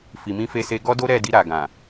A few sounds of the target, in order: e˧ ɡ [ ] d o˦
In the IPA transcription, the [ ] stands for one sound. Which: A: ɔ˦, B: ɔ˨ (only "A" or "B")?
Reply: A